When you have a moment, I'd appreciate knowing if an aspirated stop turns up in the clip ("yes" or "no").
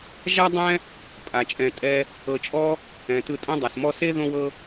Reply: no